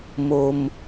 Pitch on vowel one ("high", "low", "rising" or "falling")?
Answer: low